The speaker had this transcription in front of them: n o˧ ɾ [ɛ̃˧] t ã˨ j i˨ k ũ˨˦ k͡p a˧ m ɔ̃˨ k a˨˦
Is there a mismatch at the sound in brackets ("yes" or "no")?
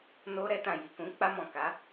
yes